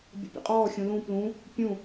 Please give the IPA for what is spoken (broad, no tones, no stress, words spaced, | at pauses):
bʲə̰pʲə̰qʼɔːxʲũ lũ plũ | pʲũ